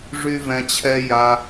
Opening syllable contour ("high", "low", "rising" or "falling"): high